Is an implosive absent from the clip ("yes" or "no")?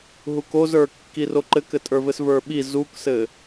no